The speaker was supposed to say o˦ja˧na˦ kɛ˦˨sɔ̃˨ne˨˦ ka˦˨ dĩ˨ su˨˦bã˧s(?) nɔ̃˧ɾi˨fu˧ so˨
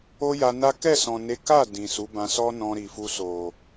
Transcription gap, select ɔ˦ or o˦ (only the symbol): ɔ˦